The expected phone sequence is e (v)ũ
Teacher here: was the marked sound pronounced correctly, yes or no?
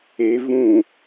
yes